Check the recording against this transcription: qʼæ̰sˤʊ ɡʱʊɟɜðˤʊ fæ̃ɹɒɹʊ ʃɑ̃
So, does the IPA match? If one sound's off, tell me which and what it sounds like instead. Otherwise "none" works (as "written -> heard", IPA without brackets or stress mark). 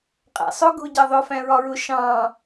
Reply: none